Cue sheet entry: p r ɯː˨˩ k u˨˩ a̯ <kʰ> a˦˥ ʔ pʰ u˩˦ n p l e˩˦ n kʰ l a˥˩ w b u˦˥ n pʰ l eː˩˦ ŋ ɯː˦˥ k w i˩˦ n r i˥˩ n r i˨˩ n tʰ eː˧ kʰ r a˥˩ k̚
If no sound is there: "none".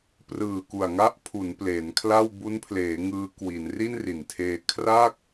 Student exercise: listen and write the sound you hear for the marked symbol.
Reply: ŋ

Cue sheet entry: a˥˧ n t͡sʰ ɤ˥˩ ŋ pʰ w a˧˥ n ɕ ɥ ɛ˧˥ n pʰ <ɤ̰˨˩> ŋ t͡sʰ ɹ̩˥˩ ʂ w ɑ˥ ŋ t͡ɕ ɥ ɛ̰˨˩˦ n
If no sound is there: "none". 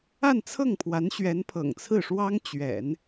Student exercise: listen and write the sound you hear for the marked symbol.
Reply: ɤ̰˨˩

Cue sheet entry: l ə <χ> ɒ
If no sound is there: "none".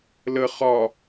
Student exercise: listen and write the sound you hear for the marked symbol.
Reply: χ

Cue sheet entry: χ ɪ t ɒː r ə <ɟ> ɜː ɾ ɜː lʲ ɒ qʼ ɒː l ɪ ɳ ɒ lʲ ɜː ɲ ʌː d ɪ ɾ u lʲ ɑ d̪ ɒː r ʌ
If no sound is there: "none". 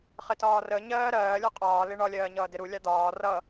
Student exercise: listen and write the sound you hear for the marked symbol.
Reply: ɲ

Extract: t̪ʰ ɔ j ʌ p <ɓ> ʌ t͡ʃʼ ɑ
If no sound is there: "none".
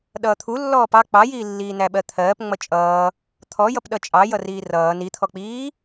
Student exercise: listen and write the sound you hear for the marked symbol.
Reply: ɗ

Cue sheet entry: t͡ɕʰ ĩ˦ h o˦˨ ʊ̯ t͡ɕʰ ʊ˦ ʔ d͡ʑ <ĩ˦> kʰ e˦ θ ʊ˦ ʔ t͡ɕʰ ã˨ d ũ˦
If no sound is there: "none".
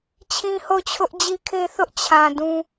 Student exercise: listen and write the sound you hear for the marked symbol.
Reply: i˦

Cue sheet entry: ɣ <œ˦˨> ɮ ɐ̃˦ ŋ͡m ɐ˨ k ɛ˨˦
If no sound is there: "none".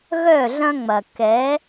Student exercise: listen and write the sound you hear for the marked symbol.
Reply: œ˦˨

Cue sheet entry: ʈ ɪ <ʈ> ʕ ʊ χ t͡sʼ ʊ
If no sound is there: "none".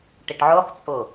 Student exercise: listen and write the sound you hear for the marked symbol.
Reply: ʈ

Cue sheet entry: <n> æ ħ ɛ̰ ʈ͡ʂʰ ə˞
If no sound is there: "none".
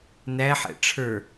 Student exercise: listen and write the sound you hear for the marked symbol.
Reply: n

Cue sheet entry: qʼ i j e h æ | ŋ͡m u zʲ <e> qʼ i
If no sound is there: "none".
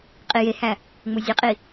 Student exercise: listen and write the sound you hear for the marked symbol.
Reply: e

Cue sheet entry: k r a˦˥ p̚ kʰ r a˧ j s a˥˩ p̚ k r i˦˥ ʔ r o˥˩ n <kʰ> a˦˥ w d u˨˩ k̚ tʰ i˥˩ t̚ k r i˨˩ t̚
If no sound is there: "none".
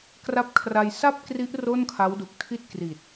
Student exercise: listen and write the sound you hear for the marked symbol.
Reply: kʰ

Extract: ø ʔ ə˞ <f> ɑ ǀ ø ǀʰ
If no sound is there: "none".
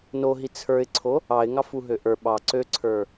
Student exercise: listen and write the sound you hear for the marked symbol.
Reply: ɓ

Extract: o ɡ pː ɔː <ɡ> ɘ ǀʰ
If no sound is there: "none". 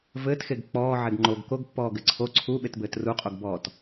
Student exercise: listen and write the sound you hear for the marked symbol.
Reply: ɡ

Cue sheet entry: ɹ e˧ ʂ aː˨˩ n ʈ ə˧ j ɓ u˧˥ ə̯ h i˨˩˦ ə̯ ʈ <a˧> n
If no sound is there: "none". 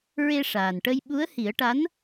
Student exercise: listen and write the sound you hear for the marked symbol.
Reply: a˧˥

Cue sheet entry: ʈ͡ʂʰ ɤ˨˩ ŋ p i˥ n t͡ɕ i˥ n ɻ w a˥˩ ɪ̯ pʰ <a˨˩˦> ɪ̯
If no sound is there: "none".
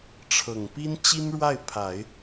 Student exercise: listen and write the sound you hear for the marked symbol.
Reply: a˨˩˦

